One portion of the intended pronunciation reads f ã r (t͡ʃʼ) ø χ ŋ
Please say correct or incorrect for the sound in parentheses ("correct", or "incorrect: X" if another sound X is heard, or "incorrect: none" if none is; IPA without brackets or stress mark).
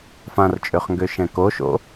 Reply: correct